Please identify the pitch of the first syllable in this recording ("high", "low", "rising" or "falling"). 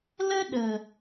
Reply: high